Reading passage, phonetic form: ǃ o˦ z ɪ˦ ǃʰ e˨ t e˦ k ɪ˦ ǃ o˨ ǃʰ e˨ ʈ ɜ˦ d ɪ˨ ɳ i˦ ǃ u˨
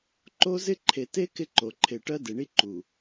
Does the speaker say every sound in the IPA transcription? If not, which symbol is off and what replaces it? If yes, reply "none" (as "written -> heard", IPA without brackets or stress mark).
none